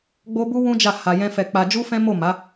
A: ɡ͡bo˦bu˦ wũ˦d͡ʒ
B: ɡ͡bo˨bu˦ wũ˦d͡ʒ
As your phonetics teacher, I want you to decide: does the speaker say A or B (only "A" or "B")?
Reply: A